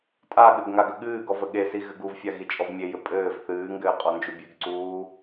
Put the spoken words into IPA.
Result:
tʼ a ɠ ɘ ɡ ŋ a ɡ ə ɠ ɨː ɡ ɔ v ə ɠ e s i ɣ ɘ ɡ u v fʲ a ɣ i t͡ʃʼ ɔ v mʲ e j ɘ pʼ ɘː v θ ɨː ŋ ɡ ɘː qʼ ɔ n d͡ʒ u bʲ ʉ ɡ ǀ uː

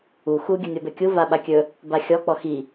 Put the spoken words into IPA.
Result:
u x u ɡʲ ə nʲ ɔ b ɛ kʲ u v a ɓ a kʲ ɵ | b a xʲ ɔ k͡p ɔ x i

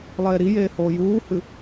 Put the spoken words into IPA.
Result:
lˠ eː ɾ i j eː h oː j uː h ɨ

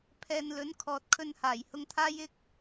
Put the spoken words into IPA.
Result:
pʰ ɛː˨ n l ɵ˨˥ n kʰ ɔː˧ t̚ kʰ ɵ˧ n h aː˨˩ j h ʊ˧ ŋ t̪ʰ aː˥ j ɪ˥ k̚

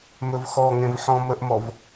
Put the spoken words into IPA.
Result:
m ɵ v x ɔ ŋ ẽ v ħ ɔ̃ m ə ʔ m ɔ v

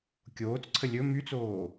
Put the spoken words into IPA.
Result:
kʲ oː t͡s ǀʰ ə lʲ ɵ m y t͡s oː

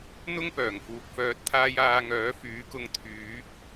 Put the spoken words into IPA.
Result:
n̪ ʊ˥ ŋ p œː˨˩ ŋ f uː˨ k̚ f œː˨ t̚ t̪ʰ aː˧ j aː˧ ŋ œː˨˥ f yː˨˥ k ʊ˧ ŋ t̪ʰ yː˨˥ k̚

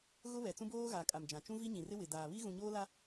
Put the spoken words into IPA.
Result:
ɣ ʊ˦ β ɛ˨ t͡s ũ˦ b oː˦ ɣ a˨ kʼ a˨ m d͡ʒ ã˨ t͡ʃ ũ˦ v i˦ ɲ ĩ˨ r ɪ˦ w ɪ˨ d aː˨ β i˦ ɣ ũ˨ ɲ oː˦ l a˦

